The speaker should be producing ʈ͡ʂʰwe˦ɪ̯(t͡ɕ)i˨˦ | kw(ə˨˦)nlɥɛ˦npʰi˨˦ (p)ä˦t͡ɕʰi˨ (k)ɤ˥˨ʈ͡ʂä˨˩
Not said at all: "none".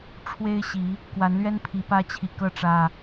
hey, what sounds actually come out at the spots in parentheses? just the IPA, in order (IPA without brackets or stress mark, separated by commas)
ɕ, a˨˦, p, k